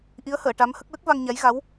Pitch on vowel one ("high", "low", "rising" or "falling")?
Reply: rising